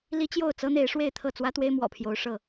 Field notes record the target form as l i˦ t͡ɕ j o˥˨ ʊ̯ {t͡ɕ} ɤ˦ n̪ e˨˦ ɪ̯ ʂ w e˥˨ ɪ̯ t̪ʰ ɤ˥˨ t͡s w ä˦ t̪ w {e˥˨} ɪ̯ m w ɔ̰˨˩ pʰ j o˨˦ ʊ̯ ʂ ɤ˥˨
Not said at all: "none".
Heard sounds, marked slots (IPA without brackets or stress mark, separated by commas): t͡s, e˦